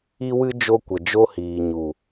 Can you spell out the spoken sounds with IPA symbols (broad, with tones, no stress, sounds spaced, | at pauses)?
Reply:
i˦ w ɨ˦ d͡ʒ o˧ kʷ ə˨ d͡ʒ o˦ h iː˨ ɲ u˨